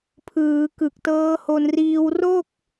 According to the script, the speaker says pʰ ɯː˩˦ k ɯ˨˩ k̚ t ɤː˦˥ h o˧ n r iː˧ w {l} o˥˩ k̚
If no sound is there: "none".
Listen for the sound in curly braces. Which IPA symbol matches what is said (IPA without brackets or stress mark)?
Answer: r